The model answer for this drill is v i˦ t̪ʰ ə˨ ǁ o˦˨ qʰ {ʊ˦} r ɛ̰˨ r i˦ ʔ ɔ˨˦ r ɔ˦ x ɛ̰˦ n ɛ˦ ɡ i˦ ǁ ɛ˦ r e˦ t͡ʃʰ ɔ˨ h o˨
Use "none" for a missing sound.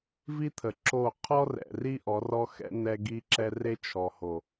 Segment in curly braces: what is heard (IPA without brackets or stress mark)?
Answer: ɔ˦